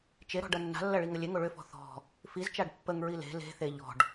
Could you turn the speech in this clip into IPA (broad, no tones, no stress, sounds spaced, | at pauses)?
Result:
t͡ʃ e ɾ ɔ̤ ɖ ɐ nː a̤ lː ɐ ɭ i ŋ ə lʲ e ŋ o ɭ ʏ f ɔ̤ θ ɔ̤ | f i z t͡ʃ a ɖ pː ə ŋ ɹ i l e̤ l e̤ θ e ʎ ɔ̤ ɖ